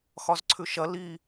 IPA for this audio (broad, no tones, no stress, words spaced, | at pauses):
xɒzǀʰʉʃɐ li